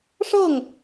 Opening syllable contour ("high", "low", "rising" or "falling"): falling